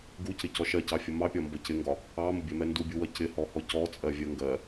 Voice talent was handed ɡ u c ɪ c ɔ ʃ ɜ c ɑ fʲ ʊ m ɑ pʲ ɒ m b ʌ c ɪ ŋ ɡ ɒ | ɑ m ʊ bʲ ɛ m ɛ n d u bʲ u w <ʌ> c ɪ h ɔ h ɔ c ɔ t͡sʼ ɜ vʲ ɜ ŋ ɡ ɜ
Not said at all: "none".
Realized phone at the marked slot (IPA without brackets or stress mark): ʌ